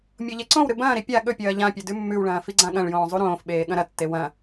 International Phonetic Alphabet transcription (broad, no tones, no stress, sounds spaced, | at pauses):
mʲ o ʎ e ǀ õ w ɾ ɨ b ɐ̃ː ɾ i pʲ a ɠ ɵ pʲ ɐː ʎ ã pʲ ɵ d ʉ mː ʉ w ɭ ɐ̃ː f i ɡ͡ǀ ã ɠ ɐ̃ ɭ j õː zˤ u ɾ õː f ɓ eː ɠ ɐ̃ ɾ ɐ tː e w ɐ̃